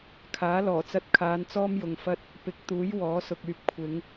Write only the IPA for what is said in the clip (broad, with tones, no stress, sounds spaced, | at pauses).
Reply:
kʰ aː˨˥ l ɔː˨˩ t͡s ɐ˧ t̚ kʰ aː˨˧ n t͡s ɔː˥ m j ʊ˨ ŋ f ɐ˥ t̚ | p ɪ˨˥ k̚ t̪ uː˨˥ j w ɔː˨˥ s ʊ˨ k̚ yː˨ p̚ kʷʰ ɪ˨˧ ŋ